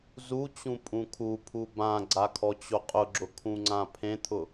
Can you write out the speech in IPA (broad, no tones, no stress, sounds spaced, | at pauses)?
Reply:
z u t͡ɕ ũ pʼ ũ kʰ u pʰ u b ã ɡ͡ǀ a kʰ ɔ t͡ɕ o qʼ ʊ ɡ͡ǁ ʊ kʰ ũ ŋ͡ǀ ã pʰ ẽ t̪ʰ ʊ